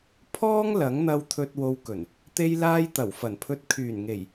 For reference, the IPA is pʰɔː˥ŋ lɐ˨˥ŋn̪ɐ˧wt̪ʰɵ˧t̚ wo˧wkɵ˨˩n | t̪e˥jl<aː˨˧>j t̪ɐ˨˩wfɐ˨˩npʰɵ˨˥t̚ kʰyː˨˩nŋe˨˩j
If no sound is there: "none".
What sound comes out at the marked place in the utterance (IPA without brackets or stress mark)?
aː˥